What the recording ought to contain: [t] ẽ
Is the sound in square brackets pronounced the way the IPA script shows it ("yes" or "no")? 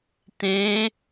yes